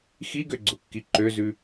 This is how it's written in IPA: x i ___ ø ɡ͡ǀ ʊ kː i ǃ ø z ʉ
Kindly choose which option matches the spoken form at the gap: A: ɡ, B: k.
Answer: A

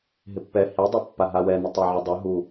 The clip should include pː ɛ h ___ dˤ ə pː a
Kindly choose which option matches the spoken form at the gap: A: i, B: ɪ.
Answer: A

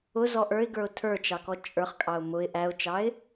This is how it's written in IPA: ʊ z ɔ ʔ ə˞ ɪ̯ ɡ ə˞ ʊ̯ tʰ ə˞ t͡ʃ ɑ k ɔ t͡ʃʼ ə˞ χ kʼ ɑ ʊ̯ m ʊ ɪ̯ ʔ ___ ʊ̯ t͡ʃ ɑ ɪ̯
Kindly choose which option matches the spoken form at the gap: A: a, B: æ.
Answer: B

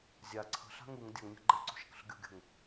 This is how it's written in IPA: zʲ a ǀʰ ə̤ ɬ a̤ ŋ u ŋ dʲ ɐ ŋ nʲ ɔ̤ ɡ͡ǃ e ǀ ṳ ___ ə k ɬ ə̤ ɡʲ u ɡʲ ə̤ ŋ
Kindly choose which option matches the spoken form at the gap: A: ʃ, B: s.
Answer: A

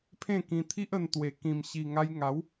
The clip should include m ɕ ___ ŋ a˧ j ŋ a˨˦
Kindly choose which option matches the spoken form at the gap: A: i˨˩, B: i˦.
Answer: A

